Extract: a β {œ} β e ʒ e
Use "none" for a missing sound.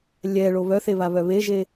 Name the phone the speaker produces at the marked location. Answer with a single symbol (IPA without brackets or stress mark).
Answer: œ